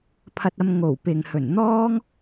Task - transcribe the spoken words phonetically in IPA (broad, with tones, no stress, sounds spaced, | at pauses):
pʰ ɐ˧ t̚ ɐ˧ m ŋ o˨˩ w p ɪ˨ ŋ h ɵ˨˩ n n̪ ɔː˥ ŋ